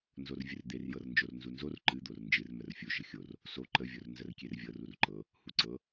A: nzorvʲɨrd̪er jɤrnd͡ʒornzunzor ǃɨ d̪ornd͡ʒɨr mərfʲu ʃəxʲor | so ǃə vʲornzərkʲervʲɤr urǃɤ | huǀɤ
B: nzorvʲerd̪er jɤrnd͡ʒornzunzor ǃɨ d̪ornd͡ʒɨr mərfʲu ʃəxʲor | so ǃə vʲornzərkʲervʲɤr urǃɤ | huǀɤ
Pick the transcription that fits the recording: A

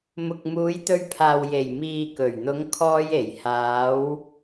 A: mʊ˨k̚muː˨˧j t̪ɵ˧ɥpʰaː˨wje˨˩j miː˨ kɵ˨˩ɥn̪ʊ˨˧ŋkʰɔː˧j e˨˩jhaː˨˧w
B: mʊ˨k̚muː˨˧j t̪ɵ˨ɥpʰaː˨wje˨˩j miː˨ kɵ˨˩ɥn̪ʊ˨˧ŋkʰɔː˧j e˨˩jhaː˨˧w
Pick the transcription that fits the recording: A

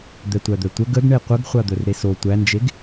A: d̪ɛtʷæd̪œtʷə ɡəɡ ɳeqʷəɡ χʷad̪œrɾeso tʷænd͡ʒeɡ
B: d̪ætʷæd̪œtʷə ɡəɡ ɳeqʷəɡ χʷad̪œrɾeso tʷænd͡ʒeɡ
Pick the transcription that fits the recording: A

